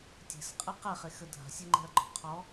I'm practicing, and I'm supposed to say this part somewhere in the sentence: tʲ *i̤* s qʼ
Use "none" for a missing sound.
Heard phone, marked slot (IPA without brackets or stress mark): e̤